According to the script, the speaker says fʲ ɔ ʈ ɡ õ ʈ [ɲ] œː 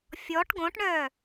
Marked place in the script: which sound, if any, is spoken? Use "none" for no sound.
ɳ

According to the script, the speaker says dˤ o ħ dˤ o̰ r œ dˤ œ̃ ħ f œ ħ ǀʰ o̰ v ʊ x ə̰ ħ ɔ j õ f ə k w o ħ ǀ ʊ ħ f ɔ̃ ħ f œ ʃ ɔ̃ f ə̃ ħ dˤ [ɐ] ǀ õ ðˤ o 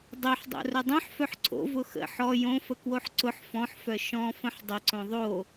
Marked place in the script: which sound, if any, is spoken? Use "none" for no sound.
ə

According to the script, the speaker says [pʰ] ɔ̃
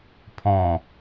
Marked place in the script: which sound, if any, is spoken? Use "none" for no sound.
pʰ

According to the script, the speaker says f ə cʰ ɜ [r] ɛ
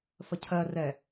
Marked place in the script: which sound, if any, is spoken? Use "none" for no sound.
r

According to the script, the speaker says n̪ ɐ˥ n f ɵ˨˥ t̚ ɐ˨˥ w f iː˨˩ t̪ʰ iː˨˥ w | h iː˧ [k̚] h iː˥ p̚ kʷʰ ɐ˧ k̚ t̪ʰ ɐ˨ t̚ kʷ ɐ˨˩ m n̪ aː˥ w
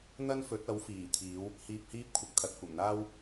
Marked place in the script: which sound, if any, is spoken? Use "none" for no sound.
p̚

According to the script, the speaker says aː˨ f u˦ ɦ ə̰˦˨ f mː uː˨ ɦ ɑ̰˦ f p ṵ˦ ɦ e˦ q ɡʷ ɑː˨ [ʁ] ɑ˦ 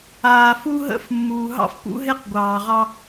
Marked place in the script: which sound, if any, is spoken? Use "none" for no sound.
ʁ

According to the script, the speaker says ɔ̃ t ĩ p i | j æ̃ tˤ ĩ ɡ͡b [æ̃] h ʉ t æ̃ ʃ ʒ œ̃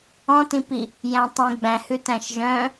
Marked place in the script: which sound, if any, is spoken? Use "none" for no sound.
æ̃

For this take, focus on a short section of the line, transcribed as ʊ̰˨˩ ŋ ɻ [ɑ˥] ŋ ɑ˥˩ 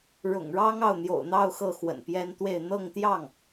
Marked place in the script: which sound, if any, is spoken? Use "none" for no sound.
ɑ˥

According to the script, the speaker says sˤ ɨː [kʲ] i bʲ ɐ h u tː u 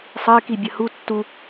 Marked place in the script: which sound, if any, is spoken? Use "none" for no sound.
k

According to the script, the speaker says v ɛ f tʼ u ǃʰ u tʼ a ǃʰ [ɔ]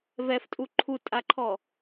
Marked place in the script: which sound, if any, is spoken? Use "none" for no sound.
ɔ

